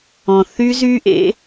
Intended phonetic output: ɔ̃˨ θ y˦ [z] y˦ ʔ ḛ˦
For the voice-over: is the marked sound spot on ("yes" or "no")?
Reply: yes